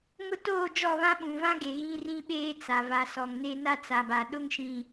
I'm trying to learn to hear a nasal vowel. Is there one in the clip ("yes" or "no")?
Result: yes